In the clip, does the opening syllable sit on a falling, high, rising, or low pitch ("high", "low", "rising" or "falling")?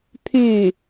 falling